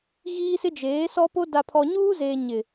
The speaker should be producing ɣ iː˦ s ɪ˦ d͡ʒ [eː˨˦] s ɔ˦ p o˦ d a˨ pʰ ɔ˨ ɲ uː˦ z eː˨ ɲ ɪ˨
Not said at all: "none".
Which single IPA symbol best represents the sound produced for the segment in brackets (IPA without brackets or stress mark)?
eː˨˦